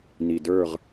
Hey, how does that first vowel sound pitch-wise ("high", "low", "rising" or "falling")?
low